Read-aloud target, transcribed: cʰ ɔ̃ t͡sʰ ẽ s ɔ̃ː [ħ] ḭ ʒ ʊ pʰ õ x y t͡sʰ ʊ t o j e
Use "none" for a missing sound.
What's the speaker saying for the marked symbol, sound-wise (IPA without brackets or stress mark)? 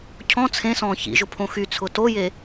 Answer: ç